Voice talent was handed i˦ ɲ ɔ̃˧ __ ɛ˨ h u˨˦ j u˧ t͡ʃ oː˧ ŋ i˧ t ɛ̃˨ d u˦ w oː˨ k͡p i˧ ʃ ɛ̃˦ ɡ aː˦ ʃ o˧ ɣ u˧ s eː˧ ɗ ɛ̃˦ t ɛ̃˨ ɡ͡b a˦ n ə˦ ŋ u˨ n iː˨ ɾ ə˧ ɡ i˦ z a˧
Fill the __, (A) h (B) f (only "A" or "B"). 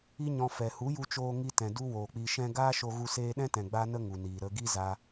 B